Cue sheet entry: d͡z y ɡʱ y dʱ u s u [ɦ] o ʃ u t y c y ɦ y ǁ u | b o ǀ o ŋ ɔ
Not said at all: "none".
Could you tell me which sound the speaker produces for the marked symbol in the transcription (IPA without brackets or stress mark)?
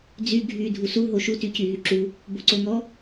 ɦ